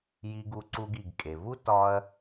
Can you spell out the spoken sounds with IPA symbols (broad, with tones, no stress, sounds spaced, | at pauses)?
j i˨ ɡ u˨ ǀ u˨ ɡ i˩ ɡ kʼ e˩ v u˦ t ɒ˦ ɐ̯